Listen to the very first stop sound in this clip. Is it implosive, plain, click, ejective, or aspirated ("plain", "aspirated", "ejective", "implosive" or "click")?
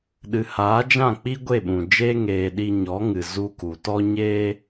implosive